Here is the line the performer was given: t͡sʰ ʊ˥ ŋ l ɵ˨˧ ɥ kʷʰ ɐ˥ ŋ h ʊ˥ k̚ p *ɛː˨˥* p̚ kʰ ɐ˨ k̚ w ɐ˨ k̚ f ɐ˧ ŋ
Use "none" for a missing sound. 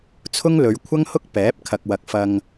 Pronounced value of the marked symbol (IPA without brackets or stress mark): ɛː˨˥